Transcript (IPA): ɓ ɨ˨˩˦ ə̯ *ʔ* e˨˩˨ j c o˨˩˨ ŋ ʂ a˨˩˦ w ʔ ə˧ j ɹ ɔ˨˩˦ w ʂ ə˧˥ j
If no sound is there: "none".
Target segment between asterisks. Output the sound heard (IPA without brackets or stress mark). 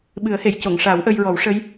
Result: h